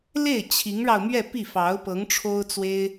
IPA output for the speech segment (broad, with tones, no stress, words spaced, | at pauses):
le˥˩ɪ̯ t͡ɕʰi˧˥ŋɻɑ˧ʊ̯ mɥɛ˥˧ pi˥˩fɑ˧˥ʊ̯pɤ˧˥ŋʈ͡ʂʰo˥ʊ̯ t͡swe˥ɪ̯